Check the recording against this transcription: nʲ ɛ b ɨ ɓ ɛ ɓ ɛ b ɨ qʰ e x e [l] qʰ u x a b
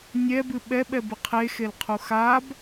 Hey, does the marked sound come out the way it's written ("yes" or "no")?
yes